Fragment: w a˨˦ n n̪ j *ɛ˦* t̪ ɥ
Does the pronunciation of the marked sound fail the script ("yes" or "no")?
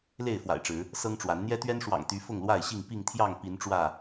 no